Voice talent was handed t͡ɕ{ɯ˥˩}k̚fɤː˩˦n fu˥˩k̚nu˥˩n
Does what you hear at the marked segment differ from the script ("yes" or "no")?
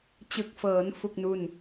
yes